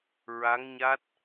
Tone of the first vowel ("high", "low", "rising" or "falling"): rising